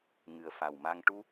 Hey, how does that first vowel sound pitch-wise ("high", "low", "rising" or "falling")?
low